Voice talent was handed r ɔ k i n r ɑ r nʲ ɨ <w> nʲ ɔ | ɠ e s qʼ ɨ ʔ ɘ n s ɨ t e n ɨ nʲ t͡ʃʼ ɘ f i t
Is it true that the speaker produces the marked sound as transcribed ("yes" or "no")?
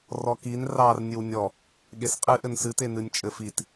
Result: yes